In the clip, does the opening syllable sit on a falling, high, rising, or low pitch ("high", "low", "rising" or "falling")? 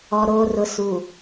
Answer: low